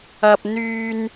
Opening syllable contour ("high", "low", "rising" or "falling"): high